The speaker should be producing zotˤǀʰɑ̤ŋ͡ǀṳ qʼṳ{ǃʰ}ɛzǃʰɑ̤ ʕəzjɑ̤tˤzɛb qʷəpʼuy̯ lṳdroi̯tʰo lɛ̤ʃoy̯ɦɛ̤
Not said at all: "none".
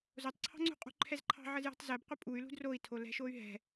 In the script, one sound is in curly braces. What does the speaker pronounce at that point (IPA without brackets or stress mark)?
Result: ǃʰ